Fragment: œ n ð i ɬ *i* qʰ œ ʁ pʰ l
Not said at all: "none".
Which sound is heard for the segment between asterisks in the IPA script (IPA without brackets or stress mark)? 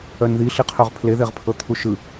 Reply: i